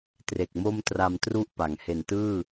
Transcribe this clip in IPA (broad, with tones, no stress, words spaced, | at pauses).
tre˨˩k̚mo˥˩m tra˧mtru˥˩ʔpa˩˦ŋ he˨˩ntɯː˥˩